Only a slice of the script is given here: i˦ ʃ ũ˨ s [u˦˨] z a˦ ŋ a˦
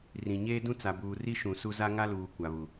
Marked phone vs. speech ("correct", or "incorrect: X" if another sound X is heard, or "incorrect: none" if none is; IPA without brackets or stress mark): incorrect: u˦